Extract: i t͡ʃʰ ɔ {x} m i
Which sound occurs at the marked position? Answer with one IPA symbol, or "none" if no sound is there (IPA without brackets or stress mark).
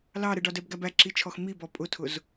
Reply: x